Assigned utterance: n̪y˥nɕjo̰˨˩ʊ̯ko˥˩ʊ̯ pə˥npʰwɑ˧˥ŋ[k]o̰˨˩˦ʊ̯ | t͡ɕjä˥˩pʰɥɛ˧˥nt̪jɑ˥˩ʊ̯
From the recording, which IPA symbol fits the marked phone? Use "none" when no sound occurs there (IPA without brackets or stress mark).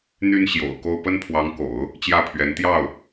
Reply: k